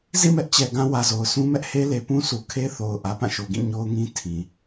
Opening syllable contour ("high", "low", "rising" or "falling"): falling